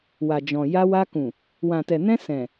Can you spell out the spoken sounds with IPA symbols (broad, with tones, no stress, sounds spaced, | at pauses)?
w a˨ d͡ʒ ɔ̃˨ j a˧ w a˧ k ũ˨ | w ã˨ t ɛ˨ n ɛ̃˧ s ɛ̃˨